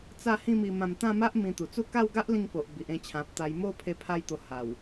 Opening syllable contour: falling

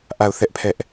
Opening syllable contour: falling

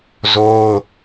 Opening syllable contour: high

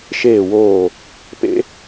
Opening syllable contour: falling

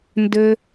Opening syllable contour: high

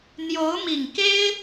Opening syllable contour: rising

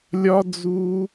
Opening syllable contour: high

